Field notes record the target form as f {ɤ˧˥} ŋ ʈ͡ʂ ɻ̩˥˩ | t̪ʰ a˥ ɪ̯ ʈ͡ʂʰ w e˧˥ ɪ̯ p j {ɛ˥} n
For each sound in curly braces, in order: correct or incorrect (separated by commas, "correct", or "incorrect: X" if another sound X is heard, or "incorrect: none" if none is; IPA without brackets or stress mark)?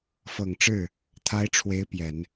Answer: incorrect: ɤ˨˩, incorrect: ɛ˨˩˦